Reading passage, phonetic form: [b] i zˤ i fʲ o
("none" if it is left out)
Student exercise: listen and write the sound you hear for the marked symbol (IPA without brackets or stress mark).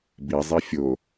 b